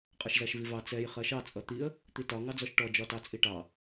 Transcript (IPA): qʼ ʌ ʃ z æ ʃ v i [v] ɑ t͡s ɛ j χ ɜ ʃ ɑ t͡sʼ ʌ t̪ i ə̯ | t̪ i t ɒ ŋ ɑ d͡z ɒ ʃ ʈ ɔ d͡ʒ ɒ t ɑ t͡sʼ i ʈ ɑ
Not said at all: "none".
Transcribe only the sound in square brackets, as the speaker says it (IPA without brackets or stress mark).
v